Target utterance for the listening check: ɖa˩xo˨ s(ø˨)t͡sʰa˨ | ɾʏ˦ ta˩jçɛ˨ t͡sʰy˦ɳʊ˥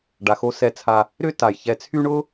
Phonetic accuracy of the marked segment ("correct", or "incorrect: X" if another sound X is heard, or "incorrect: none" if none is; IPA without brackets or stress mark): incorrect: ɛ˨